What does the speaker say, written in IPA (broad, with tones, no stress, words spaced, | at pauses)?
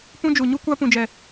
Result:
pũ˦d͡ʒu˨ɲu˦ kʷa˦pũ˨d͡ʒɛ˨